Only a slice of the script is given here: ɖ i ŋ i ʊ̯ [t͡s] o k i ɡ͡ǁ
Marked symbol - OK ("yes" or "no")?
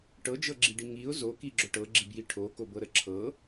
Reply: no